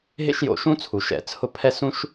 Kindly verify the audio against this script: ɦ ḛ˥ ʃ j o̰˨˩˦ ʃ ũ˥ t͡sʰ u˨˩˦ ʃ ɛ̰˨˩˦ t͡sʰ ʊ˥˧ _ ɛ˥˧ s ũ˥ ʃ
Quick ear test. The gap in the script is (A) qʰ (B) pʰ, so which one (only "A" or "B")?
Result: B